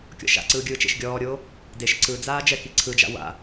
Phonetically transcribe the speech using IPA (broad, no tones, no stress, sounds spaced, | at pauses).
kʲ ɔ̰ ʃ a̰ ǀ ɯː ɡʲ ɯː t͡ʃ ḛ ʃ ɡʲ ɔː ɾʲ oː | d e ʃ ǀ ɯ d͡z aː d͡ʒ ɛ k i ǀʰ ɯ d͡ʒ a̰ w a̰